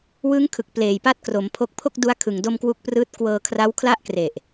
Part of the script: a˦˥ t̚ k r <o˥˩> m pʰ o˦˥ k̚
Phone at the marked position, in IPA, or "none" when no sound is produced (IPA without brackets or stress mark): o˩˦